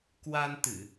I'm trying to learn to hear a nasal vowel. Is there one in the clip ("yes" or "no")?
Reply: no